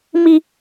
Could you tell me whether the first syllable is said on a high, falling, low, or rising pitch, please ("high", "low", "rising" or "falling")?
low